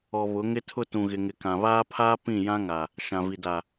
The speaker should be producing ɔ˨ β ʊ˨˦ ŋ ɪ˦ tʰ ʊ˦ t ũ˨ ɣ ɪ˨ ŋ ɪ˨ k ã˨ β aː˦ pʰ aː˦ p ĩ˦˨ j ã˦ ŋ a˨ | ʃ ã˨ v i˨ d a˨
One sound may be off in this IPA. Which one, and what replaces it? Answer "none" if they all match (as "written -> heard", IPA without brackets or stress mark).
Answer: none